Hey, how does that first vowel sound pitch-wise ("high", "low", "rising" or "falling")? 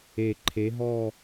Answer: low